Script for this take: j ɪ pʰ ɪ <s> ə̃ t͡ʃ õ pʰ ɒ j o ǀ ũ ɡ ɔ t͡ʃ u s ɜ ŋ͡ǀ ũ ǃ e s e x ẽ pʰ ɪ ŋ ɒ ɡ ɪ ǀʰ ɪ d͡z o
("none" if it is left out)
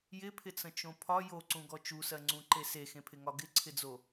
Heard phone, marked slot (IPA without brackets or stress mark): t͡s